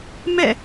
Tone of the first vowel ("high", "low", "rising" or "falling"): falling